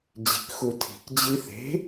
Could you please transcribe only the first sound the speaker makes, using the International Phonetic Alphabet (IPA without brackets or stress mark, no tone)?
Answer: d͡ʑ